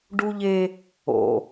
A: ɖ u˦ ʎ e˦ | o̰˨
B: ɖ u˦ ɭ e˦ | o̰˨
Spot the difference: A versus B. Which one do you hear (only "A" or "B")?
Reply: A